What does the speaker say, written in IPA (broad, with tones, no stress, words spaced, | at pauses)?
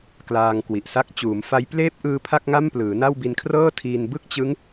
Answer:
klaː˧ŋkwi˨˩ʔsa˦˥k̚ t͡ɕuː˩˦mfa˦˥j pleː˦˥p̚ʔɯː˧ pʰa˥˩k̚ŋa˥˩mplɯː˩˦na˥˩w bi˧nkʰrɤː˥˩tʰiː˧n bɯ˥˩k̚t͡ɕɯ˦˥ŋ